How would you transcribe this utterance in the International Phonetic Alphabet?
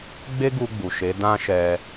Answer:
ɡ͡b e˦ ɡ u˧ ɡ͡b u˨ ʃ e˨˦ d ã˦ ʃ ɛ˧

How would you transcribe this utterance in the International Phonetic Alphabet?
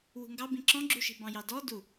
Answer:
w ṳ ŋ ɡ ɑ b ĩ ǁ ɔ̃ ɡ͡ǁ u ʃ i̤ b ɑ̃ j ɑ d ɔ d u

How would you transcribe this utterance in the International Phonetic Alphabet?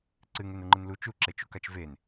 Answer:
ǀ ɨ ŋ e n u ŋ͡ǃ ɨ n l u t͡ʃ u ǁ e t͡ʃ u k a t͡ʃ v e n

